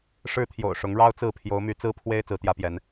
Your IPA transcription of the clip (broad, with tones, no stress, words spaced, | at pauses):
ʂɻ̩˦t̪ʰjo̰˨˩ʊ̯ ʂʊ˨˦ŋɻɑ˦ʊ̯t͡sɹ̩˥˨ pʰjo˨˦ʊ̯my˨˦t͡sɹ̩˦ pʰwe˦ɪ̯ t͡sɹ̩˨˦t̪jä˦pjɛ˨˦n